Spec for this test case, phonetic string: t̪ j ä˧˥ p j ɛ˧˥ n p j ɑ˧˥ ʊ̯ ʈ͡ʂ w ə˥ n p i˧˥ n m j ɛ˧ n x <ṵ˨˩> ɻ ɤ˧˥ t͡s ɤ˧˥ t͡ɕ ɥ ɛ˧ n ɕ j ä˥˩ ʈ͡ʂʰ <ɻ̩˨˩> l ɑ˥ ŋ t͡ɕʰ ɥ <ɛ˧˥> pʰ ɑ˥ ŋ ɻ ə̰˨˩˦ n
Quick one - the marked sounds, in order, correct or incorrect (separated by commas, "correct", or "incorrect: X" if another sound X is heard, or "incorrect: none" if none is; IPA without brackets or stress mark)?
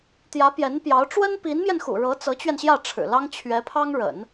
correct, correct, correct